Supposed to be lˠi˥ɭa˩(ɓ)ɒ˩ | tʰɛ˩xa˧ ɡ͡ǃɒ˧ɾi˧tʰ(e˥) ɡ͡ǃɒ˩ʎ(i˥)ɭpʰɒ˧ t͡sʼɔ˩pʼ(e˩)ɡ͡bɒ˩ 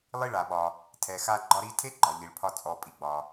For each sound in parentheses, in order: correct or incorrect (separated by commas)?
correct, correct, incorrect, incorrect